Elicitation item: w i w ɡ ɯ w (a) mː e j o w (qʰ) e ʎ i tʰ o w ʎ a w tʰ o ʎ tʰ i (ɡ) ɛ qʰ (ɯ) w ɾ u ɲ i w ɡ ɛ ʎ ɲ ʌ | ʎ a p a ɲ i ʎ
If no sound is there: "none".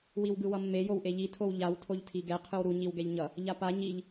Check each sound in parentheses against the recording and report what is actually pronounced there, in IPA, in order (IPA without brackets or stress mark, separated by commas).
ʌ, ʔ, ɡ, ɯ